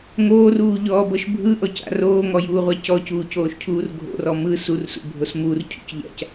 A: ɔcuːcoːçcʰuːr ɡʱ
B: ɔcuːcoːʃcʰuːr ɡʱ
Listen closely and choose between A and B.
B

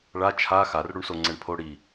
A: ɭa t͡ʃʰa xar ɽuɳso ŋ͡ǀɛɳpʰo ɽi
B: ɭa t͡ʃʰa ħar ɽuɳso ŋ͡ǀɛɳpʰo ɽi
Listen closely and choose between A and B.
A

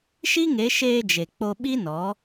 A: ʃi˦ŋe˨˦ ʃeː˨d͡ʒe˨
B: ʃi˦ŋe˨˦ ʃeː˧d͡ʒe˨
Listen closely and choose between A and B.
B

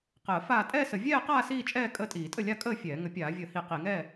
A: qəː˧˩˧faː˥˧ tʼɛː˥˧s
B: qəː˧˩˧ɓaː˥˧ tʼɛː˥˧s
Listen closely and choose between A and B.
A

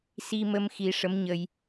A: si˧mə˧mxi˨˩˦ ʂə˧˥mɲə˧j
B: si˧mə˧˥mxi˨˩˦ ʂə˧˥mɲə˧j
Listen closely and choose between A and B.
A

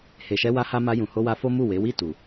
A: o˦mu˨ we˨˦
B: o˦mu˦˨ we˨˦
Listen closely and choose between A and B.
B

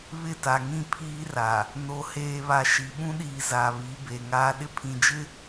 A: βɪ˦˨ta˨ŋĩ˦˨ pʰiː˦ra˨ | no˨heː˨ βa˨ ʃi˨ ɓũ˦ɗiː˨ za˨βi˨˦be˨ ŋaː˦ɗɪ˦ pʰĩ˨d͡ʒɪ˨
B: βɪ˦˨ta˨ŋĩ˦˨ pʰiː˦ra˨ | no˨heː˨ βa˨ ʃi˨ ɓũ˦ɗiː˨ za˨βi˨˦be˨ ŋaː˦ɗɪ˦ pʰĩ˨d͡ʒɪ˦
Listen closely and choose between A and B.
B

